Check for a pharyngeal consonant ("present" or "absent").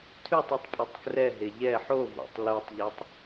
present